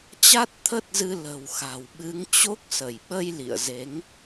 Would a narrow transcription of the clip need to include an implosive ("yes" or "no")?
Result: yes